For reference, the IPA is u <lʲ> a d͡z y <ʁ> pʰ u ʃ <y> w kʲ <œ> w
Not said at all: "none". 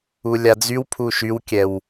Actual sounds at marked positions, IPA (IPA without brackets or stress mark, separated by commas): lʲ, w, y, ɛ